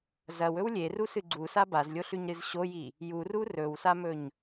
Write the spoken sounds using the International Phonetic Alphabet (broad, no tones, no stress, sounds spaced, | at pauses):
z ɐ w ɵ w lʲ e r u s ɨ ɡ͡ǀ u s a b a z lʲ o ɬ ʉ ɲ ɾ ɨ z ɕ o j i | j u r u r ɵ w s a m ɵ ɲ